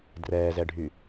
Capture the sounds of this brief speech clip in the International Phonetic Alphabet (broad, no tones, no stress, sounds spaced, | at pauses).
d r ɛː z ɛ ɖʱ y